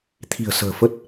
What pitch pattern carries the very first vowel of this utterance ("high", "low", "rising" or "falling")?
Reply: low